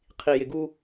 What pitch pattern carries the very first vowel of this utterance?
low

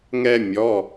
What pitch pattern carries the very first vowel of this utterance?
high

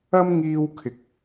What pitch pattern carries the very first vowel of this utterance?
high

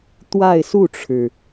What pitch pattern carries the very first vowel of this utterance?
falling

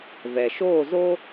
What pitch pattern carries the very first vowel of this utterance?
low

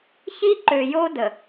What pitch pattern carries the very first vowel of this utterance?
high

